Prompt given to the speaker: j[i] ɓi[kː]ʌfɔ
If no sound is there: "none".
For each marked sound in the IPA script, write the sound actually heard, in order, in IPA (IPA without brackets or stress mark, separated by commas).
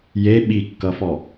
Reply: e, kː